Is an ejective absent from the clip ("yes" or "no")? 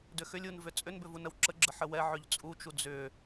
no